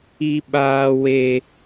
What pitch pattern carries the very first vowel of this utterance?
high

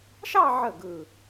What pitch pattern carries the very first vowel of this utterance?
falling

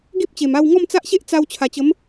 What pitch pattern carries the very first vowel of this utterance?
high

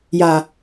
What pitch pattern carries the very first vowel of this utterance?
low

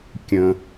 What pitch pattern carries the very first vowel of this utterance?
low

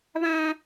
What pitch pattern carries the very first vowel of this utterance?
high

